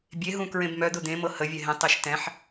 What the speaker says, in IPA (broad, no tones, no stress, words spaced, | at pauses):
bʲeɦũ kɹẽbmœd̪ʊ d̪ẽmɤ həvʲɛ ɦẽtˤeʃ tɛ̃ħ